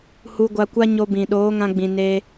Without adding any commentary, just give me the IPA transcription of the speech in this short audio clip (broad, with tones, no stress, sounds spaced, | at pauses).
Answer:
h u˧ ɡʷ a˧ kʷ a˦ ɲ o˧ b ĩ˨ ɗ oː˨˦ ŋ ã˧ ɡ͡b ĩ˨ n e˧